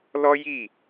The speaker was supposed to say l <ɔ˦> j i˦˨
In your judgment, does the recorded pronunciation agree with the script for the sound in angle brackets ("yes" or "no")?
yes